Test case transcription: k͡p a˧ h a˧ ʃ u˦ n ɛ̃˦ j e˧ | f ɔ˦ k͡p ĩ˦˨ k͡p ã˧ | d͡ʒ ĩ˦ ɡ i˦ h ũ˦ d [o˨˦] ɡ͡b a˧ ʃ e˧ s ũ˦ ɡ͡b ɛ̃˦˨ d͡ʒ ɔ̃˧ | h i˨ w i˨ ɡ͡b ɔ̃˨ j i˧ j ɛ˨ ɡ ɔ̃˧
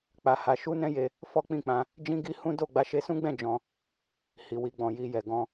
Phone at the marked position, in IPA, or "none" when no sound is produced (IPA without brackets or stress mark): o˦˨